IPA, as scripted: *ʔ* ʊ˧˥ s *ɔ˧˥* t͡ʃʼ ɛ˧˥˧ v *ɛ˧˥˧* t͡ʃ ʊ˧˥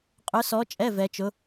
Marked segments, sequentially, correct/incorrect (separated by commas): incorrect, correct, incorrect